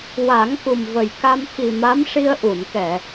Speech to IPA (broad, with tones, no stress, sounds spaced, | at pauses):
w a˨˩˦ ŋ k u˨˩ m v ə˨˩ j k a˧ m x i˨˩ m a˧˥ m ʂ i˧ ə̯ ʔ u˨˩˨ n k ɛ˨˩˨